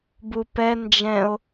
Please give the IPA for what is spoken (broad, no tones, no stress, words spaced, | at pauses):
bupɛ nd͡ʒɛ̃o̯